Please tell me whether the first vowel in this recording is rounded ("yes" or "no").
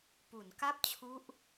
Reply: yes